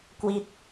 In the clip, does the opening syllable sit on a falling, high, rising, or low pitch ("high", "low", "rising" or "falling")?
falling